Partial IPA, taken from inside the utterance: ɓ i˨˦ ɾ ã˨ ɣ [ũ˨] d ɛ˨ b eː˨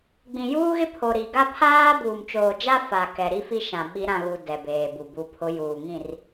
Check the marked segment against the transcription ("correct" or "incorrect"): incorrect